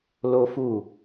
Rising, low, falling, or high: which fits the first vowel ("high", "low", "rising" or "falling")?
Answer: high